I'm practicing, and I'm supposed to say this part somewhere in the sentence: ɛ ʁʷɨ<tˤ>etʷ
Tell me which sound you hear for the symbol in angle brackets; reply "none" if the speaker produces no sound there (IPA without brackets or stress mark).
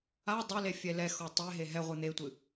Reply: n̪